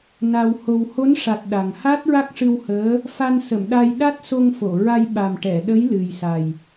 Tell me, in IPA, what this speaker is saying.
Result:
n a˧ w h o˧ w h o˧˥ n ʂ a˨˩ t̚ ɗ a˨˩ ŋ h a˦˥ t̚ ɹ a˦˥ k̚ ʂ ɨ˧ w h əː˧˥ | f a˧ n s ə˨˩˨ m ɗ a˧ j ɗ a˦˥ t̚ s o˧ ŋ f o˨˩˨ ɹ a˧ j ɓ a˨˩ m ʈ ɛ˨˩˨ ɗ ə˧˥ j l ɨ˨˩ j s a˨˩ j

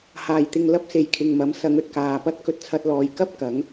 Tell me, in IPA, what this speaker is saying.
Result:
h aː˨˩ j t̪ ɪ˨ ŋ l ɐ˥ p̚ s e˨ j kʰ ɪ˨ ŋ m ɐ˨˥ m s ɐ˨˧ ŋ ɵ˨ t̚ k aː˨ p ɐ˥ t̚ k ɵ˧ t̚ t͡sʰ ɐ˧ t̚ l ɔː˨ j k ɐ˥ p̚ k ɐ˨˥ ŋ

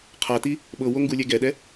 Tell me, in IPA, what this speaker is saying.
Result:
qʰ a t i | ɓ ɤ w o ŋ ɡ u lʲ ɛ ɡ ɛ ɗ ɛ

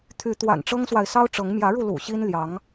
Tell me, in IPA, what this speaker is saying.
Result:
t̪ʰ y˨˦ t̪ w a̰˨˩ n ʈ͡ʂ ɤ˦ ŋ s w a˨ ɪ̯ s ɑ˦ ʊ̯ ʈ͡ʂ ɤ˨˦ ŋ m j ä˨˦ ɻ u˧ l ṵ˨˩ ɕ i˦ n l j ɑ˨˦ ŋ

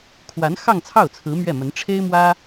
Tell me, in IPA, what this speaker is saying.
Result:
kʰ w a˧˥ n x ɑ˥˧ ŋ t͡sʰ ɑ˥˩ ʊ̯ t͡sʰ ɹ̩˧˥ m ɥ ɛ˥˩ m ə˧˥ n ʈ͡ʂʰ e˥ ɪ̯ m w ä˥

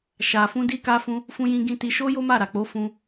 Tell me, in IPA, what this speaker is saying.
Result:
ʃ a˨ f ũ˧ d i˧ k a˧ f ũ˧ | f ũ˦ j ĩ˦ ɡ ĩ˧ t i˧ ʃ o˦ j o˦ m a˦˨ ɾ a˨ k͡p o˨˦ f ũ˧

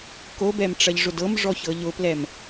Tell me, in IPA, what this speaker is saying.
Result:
k o b ɛ m ʈ͡ʂ ɐ ʎ ʐ ʊ d ɤ m ʐ ɔ ç ɤ ʎ ʊ p l ɛ m

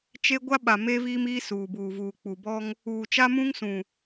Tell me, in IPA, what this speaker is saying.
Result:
t͡ʃ e˦ ɡʷ a˦ ɓ a˨ m eː˦ v iː˦ m iː˦ s uː˨ b uː˨ v uː˨ k͡p u˨ b ɔ˦ ŋ | uː˨ t͡ʃ a˦ m ũ˦ ŋ s ũ˨

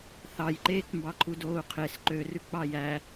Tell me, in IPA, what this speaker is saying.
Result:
θ ɑ j ǃ eː k m b ɑ ǃʰ u d oː u̯ qʰ e s ǃ ø r ʉ k͡p ɑ j æ

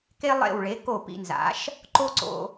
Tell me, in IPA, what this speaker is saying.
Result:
k e˥ lˠ ḛ˥˩ w ɭ e˩˥ k o˥˩ p ḭ˧ n z a̰˩˥ ʃ | ǃ o˥ ǀ o̰˧

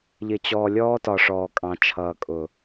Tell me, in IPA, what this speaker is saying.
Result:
ʎ ɪ˨ t͡ɕ ɔː˨ lʲ ɔː˦ t ɒ˨ ʂ ɔː˨ kʼ ɑ̃˨ t͡ʃʰ ʌː˨ kʼ ʊ˨

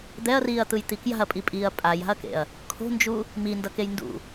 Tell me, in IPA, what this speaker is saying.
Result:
d̪ ɛ ɐ̯ r iː ɐ̯ t̪ ɯ j t̪ i k j a̤ ɐ̯ pʼ i pʼ iː ɐ̯ pʼ a j a̤ ɐ̯ k ḛ ɐ̯ | kʰ o̤ n d͡ʒ u | m i n d ʌ k e j n d ṵ

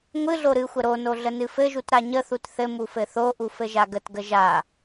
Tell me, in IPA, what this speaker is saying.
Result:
ŋʷ ɨ ɮ o ɾ ɨ xʷ ə ɾ o n o ɮ ə n ɨ f ɘ ʒ u t ɾ a ɲ ə θ u t θ ɘ m u f ɘ θ o ʔ u f ɘ ʒ a ɡ ə t ɡ ə ʒ a

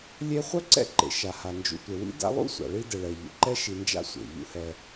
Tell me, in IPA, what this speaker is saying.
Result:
lʲ e˦ χʷ œ˥ ǀ ɛ̰˦ ǃ ḛ˩ ʃ a˩ h a˩ n d͡ʒ ṵ˨ tʷ e˩ w ḭ˥ d a̰˦ lˠ ṵ˥ sʷ a̰˩ ɭ i˦ d ɛ˩ ɭ ɛ˩ ʎ ṵ˩ ǃ ɛ˦ ʃ i˨ n d͡ʒ a̰˦ sʷ ḛ˩ ʎ ṵ˦ h ɛ˨

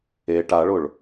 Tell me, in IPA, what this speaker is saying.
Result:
e ʈ a ɭ ʊ ɭ

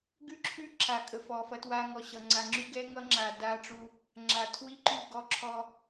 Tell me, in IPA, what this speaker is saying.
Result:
ɡ ʉ˦ ǁʰ ʉ˦ ǁʰ a˨ kʼ ə˨ f ɔ˨ f ɐ˦ t w a˦ ŋ ɔ˨ ɕ ʌ˨ ŋ͡ǀ a˨ ŋ͡ǁ ʉ˦ ɡ ɛ˦ ŋ ʌ˦ ŋ͡ǁ a˨ d a˦ ʈ͡ʂ u˦ | ŋ͡ǁ a˨ tʰ w i˦ ǃ ʉ˦˨ ɡ ɔ˦ ǁʰ ɔ˦

